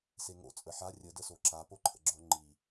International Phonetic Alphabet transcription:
seŋo̰ t͡sʼəħa rʲə dəsoǁa poǃʰə̰ɡ͡ǁo ŋ͡ǃi

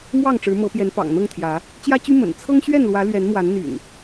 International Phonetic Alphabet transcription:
mwɑ˥˨ŋʈ͡ʂɻ̩˨˦mɤ˨˦pjɛ˨˦n pɑ̰˨˩ŋn̪ɤ˥˨ŋt̪ʰjä˨˦ | t͡ɕjä˦t͡ɕy˦ mə̰˨˩n t͡sʰɤ˦ŋɕɥɛ˥˨nlwä˨˦ lɥɛ˨˦nmwa˨˦nn̪y̰˨˩n

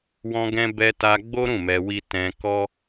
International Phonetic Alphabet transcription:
wɔ̃˧ɡɛ̃˧bɛ˧ta˧ ɡ͡bo˦ɾũ˦˨ mɛ˧wi˦ tɛ̃˧kɔ˦

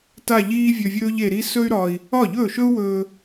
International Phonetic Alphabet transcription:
ta˥˧ʎiː˥vʲɵ˧vʲɵː˥ʎ e˧ɾi˥ sɵ˥y̯ɾɒ˧i̯ | ɒ˥˩ʎɵː˥˩ʃɵ˥u̯wɵː˧

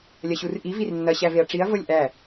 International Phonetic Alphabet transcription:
lʲɐɕurʔi virnːɐ ɕæveɐ̯ʈ͡ʂiɐ̯ vɤlʲʔæ

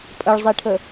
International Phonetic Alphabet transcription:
pʼəɭzˤiʈʰə

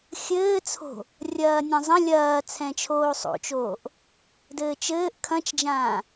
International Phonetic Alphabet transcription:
xʲɘːt͡sʰo̤ | rʲɐːnʲãzˤɐ̃ lʲɐː t͡sʰɛ̃t͡ʃʰoːsˤo̰t͡ʃoːʔ | dɘːt͡ʃɘːʔ kʰɐ̃t͡ʃd͡ʒãː

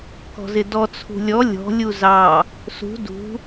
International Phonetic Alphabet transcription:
kɔ̤zɪdɔ t͡sʰṳlʲɔ lʲɔ̤ lʲuzɑ | sṳ dṳ

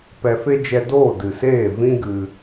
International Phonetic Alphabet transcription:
pɛ˧fe˦ d͡ʒɛ˧doː˦˨ dɨ˨seː˦˨ vĩ˦ɡɨ˧

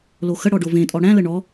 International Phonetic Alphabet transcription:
loxəɽɔ ɖovẽtʼɔ ɽæ̃lə ɳɔ

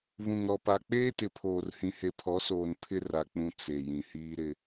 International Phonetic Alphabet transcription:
βũ˨ŋɾɔ˨pa˨ k͡peː˦tɪ˨pʰoː˨rhĩ˨ he˨pʰɔ˨˦soː˨n pʰɪ˦ ra˨k͡pũ˨ t͡se˨ jĩ˨hiː˦ɾɪ˦

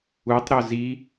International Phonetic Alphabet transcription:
utˤɾo zi

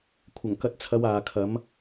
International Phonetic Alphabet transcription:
kʷʰɐ˨˩ŋkɐ˧t̚t͡sʰɐ˨˧w aː˨kʰɐ˨˥m

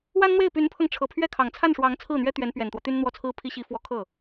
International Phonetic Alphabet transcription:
wa˥nn̪we˥˩ɪ̯ py˧˥npʰɤ˧ŋ ʈ͡ʂʰɤ˨˩ pʰɥɛ˥˩ kʰɑ˨˩ŋt͡sʰa˥˩nʂwɑ˧˥ŋ t͡sʰɹ̩˥˩n̪ɥɛ˥ t̪ɥɛ˧˥npɥɛ˨˩nt̪wɔ˦ t̪y˥nn̪wɔ˥˩t͡sʰɹ̩˥pʰi˥ ɕi˧˥fwɔ˧˥ kʰɤ˥˩

